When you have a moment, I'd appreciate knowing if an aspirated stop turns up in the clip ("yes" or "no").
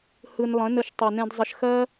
no